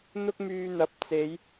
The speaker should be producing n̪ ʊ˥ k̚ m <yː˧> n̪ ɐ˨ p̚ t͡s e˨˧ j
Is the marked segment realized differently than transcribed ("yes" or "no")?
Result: no